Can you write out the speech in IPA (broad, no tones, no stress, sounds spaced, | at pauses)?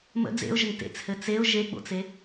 m ə̰ d͡z ḛ ʊ̯ ʒ ə ŋ t ḛ t͡s h ɘ t͡s e ʊ̯ ʒ e ɡ͡b o̰ t͡s e